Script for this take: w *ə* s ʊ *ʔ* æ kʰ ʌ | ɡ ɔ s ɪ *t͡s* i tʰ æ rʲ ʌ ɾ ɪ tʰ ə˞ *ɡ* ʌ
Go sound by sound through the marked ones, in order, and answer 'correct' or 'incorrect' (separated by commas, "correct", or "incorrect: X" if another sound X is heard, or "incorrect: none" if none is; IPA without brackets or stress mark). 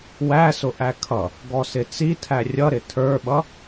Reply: incorrect: æ, correct, correct, incorrect: ɓ